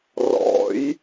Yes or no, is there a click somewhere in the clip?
no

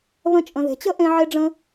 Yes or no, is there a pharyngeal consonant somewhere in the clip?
yes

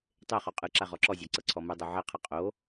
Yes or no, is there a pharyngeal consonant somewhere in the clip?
yes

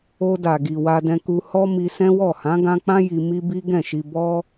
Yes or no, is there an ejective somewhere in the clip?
no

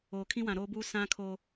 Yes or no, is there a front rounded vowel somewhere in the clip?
no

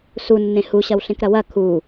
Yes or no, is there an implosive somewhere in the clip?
no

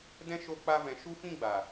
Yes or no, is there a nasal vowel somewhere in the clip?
yes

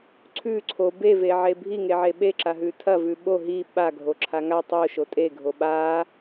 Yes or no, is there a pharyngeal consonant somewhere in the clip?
yes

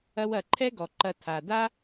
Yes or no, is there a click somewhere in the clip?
yes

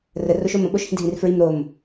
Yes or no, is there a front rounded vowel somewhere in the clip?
no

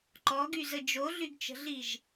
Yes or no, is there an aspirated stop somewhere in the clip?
no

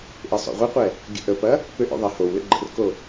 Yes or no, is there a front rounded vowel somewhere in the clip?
yes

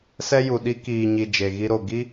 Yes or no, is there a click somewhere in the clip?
no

